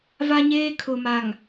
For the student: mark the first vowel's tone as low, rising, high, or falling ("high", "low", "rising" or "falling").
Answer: high